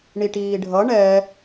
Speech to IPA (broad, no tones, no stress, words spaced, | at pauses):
ɳiʈiːɖʱʌ ɳɛ